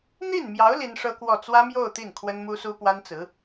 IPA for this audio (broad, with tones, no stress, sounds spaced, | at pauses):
n̪ i˥˩ n m j ɑ˧˥ ʊ̯ l i˥ n ʂ ɤ˥ k w ɔ˥˩ t͡s w ä˥ m j o˥˧ ʊ̯ t̪ i˥˩ n kʰ w ə˥ n m u˥ s u˥ p w a˥ n t͡s ɹ̩˧˥